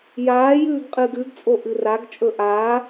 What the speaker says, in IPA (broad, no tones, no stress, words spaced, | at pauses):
jaːjʉːɡ qʼɨːɡʉɡt͡sʼo ʔɨraɡt͡ʃʼɵ ʔaː